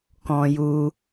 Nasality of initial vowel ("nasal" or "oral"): nasal